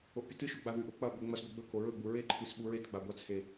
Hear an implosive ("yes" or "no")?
yes